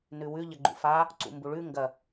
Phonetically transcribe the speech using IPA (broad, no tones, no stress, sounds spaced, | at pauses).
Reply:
n ʉ w ʉ ʎ ɐ ɡ͡ǃ ṵ f a | ǀ ṵ m b u ɭ ʉ ŋ ɡ ɐ